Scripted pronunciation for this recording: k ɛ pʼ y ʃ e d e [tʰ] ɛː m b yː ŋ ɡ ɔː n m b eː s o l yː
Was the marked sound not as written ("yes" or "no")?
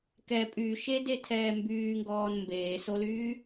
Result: no